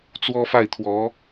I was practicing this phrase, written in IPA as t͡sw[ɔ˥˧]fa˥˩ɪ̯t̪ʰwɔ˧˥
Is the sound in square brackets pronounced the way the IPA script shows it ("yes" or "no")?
no